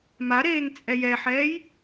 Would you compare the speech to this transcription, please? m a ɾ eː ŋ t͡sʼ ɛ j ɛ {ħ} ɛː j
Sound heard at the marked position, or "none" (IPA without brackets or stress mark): ħ